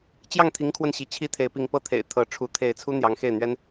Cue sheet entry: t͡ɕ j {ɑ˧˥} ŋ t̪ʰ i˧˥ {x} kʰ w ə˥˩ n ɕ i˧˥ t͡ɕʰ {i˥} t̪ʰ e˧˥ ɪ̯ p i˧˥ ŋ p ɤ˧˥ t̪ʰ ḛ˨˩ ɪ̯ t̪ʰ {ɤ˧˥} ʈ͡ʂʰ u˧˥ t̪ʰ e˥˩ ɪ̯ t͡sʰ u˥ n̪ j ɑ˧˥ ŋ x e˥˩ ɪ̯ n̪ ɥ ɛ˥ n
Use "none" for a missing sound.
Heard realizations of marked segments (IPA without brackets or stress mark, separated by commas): ɑ˥˩, ŋ, i˥, ɤ˧˥